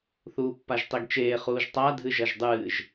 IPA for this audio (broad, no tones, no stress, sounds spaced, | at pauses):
θ uː pː a ʒ tˤ i ɡ t͡ʃ eː χ uː ʒ tˤ a dʱ ɨ ʒ ɐ ʒ dˤ ɨː ʒ